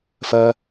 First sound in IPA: f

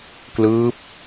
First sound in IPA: k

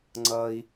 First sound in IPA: ŋ͡ǀ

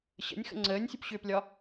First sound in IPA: ɕ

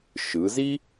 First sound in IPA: ʃ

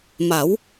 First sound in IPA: m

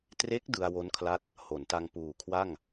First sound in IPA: t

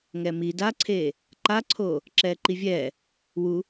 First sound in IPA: ŋ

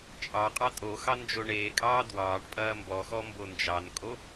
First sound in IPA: t͡ʃʼ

